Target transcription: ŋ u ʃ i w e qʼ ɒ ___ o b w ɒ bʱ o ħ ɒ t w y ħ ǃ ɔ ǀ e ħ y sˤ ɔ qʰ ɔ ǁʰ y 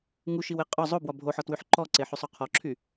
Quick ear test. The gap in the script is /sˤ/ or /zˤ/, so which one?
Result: zˤ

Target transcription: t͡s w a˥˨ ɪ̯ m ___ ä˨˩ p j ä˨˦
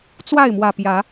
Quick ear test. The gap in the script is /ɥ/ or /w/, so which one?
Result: w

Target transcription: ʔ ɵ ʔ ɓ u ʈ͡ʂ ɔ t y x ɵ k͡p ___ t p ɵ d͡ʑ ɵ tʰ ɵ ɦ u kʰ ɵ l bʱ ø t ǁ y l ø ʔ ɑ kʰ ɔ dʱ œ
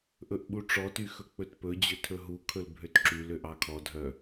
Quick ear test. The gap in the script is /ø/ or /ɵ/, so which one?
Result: ɵ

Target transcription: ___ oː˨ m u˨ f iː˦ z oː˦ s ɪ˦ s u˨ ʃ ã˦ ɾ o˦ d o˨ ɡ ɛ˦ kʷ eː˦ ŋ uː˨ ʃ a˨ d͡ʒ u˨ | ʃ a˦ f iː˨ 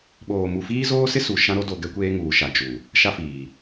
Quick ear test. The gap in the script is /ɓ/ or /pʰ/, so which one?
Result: ɓ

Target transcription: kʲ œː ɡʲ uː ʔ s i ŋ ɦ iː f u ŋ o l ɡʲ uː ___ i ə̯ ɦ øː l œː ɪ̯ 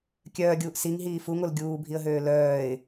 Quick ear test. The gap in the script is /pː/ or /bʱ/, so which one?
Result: bʱ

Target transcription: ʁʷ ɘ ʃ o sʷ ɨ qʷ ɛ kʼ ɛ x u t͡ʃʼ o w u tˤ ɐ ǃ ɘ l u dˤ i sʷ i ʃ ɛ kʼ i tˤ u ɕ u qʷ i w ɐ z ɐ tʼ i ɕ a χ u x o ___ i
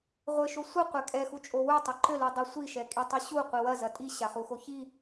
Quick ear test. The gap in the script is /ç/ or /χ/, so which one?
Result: ç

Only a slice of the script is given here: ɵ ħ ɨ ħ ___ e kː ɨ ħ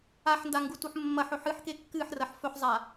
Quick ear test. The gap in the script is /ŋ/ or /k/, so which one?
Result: k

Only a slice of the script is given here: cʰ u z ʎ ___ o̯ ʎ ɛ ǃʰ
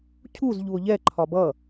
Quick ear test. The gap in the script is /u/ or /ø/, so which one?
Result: u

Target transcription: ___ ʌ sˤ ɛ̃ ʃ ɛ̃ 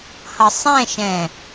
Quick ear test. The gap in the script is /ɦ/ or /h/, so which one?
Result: h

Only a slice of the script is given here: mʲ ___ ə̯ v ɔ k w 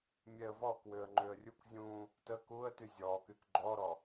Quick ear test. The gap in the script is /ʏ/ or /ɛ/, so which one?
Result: ɛ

